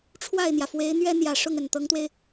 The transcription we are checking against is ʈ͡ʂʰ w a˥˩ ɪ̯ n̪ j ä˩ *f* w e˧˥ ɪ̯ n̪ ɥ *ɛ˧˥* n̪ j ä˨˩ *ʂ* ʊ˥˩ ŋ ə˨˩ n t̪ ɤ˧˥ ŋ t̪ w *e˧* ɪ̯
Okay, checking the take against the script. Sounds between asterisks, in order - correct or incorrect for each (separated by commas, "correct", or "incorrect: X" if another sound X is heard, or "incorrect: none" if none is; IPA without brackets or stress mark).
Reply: correct, incorrect: ɛ˥, correct, correct